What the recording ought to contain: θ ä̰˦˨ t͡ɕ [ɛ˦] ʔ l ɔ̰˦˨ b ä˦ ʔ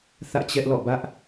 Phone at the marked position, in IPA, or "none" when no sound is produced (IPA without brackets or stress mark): ɛ˦